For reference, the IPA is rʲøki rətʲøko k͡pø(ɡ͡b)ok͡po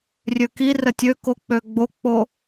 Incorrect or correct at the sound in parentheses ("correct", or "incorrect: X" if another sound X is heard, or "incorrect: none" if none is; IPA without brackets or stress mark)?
correct